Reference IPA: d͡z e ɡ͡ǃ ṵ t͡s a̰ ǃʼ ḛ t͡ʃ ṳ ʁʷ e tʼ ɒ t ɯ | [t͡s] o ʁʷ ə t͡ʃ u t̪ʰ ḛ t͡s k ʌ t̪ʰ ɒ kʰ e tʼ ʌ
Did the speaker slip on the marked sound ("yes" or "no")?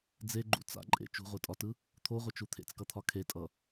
yes